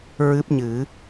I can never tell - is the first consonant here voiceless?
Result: no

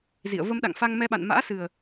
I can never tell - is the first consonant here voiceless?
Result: no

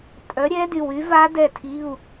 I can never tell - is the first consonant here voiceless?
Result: yes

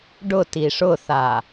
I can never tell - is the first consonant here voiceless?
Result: no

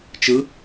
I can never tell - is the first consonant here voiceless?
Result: yes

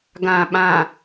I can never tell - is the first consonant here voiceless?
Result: no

